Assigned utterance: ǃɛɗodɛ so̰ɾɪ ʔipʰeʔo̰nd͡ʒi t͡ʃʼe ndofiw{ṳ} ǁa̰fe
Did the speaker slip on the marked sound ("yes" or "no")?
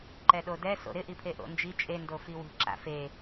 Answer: no